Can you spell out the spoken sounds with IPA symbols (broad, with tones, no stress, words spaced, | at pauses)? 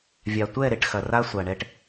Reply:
vʲa˨ tʷɛ˦˨ ɾe˨ʈxɐ˨ra˦ sʷa˨ɳɛ˧ʈ